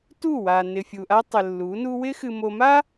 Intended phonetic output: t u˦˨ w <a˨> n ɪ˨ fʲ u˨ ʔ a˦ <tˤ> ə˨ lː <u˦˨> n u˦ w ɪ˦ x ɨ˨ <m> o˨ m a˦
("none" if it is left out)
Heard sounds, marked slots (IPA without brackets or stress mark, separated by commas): a˨, tˤ, u˨˦, m